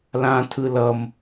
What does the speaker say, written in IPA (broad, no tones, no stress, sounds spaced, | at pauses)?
l ã tʰ ɯ l ʌ m